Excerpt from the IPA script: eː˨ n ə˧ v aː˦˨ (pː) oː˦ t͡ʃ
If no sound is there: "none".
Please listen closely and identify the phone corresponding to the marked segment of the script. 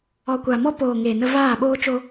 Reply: ɓ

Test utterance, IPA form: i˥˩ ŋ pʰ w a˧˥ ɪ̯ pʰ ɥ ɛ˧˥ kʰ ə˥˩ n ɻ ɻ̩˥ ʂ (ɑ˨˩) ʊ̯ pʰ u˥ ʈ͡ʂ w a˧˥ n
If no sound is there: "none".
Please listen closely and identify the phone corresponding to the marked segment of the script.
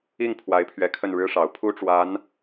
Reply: ɑ˨˩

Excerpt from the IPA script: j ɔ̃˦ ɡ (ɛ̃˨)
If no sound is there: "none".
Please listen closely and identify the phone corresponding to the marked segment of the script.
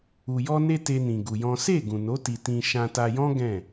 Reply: ɛ̃˦˨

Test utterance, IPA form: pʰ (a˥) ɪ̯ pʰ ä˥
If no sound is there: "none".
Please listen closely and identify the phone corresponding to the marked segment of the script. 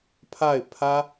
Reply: a˥˩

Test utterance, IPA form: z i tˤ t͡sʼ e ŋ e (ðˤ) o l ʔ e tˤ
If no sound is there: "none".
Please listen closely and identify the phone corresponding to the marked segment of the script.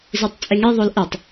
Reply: ðˤ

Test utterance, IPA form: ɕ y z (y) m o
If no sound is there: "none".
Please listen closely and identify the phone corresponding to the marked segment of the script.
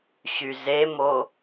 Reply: e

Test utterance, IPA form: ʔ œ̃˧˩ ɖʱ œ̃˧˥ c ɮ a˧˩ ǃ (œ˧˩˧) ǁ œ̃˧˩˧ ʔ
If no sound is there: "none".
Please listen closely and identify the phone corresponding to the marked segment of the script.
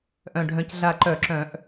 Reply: œ˧˩˧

